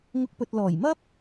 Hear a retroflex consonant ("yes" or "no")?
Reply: no